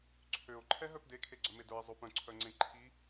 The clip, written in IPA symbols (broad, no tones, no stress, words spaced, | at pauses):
ǀʰøo̯ ǃʰɛɦœpde kʰeɡ͡ǀœmedə˞e̯ zˤopœ̃ ǀʰœŋ͡ǀẽǃʰi